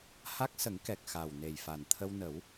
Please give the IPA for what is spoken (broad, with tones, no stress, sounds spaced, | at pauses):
h a˦˥ k̚ s ə˨˩˦ ŋ k ɛ˨˩ k̚ x a˨˩ w n e˨˩ j f a˨˩ n t̪ʰ ə˧ w n ə˨˩˦ w